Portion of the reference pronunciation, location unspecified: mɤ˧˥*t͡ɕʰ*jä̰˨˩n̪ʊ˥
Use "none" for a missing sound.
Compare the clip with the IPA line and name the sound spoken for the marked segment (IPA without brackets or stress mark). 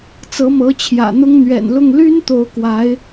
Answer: t͡ɕʰ